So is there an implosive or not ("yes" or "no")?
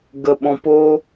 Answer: yes